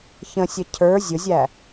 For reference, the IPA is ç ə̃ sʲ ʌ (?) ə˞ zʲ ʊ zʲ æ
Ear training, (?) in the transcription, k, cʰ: cʰ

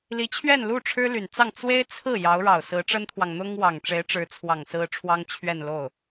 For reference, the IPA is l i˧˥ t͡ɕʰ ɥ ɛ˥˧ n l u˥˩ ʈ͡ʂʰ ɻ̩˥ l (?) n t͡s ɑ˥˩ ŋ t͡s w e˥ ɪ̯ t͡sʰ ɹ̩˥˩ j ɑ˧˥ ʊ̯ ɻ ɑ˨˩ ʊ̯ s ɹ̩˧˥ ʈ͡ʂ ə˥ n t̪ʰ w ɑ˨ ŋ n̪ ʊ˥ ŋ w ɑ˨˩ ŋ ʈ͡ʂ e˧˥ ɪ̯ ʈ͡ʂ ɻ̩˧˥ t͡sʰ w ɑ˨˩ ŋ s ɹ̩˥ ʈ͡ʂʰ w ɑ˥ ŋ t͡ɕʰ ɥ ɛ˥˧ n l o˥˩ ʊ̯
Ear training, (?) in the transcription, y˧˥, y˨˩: y˨˩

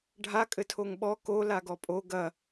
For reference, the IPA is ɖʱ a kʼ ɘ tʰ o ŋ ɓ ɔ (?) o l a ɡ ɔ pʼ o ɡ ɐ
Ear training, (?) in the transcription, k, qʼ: k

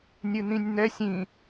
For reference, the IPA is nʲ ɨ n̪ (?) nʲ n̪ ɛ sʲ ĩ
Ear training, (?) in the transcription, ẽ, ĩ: ĩ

